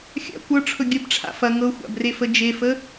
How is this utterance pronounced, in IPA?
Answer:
xʲa̰ kʷɤʈ͡ʂʰɵ ɡʲəbʈ͡ʂʰa̰ fɐ ŋɤxʷa̰brefə d͡ʒefə

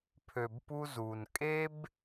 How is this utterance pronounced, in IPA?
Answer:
pʰø˨bpu˧ zu˨nkʼe˦b

